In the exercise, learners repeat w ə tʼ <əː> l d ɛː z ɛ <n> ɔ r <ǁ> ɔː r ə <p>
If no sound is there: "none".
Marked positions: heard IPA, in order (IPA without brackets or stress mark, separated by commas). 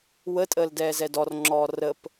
əː, d, ŋ͡ǁ, p